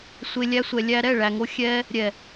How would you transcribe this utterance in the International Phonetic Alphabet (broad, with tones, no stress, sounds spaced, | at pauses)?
sʷ e˧ lʲ æ˦ sʷ ɛ˧ lʲ æ˦ ɾ ɛ˦˨ ɭ æ˨ ŋ o˧ xʲ ɛ˧ | ɾʲ ɛ˨